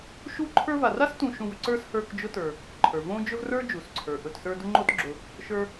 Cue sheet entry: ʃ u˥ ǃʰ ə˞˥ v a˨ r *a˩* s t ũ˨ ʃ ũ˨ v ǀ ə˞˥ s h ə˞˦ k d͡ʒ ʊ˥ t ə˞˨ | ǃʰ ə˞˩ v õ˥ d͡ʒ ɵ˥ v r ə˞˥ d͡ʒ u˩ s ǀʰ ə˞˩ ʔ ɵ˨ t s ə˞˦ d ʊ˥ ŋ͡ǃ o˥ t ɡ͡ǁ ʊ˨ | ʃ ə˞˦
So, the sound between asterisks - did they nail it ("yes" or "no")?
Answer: no